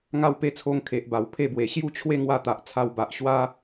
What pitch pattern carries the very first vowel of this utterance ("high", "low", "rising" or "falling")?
falling